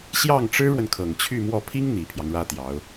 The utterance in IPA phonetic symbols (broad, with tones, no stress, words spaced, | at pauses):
ɕjɑ˥˩ŋʈ͡ʂɻ̩˥ɻwə˨n kʰɤ˨˩ŋt͡ɕʰy˥˧mwɔ˥˩ pʰi˥ŋ n̪i˨˩pʰjɑ˦ŋɻä˥t̪jɑ˧˥ʊ̯